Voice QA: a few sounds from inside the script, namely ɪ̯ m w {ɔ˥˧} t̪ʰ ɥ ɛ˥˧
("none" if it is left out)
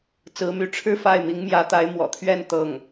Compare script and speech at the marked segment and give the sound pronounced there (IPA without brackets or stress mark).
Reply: ɔ̰˨˩